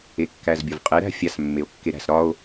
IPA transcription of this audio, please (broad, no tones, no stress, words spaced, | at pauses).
ekːæzbʲɔvqʼɛ ɾæ̤fʲas mːeo̯kːeɾæ̤s ɾɒo̯